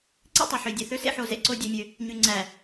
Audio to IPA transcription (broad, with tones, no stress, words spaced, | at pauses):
ǀḛ˦tˤø˨ħø˨ dʲe˨θø˦sḛ˦ ħo˦ zḛ˨ǀo˦ dʲø˦mʲø˦ | ɲy˨ŋ͡ǀæ˨